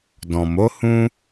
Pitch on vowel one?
low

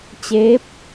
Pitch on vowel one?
rising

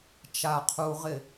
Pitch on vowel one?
low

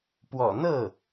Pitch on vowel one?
low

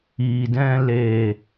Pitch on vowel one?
low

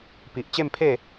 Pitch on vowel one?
low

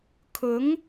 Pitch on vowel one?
rising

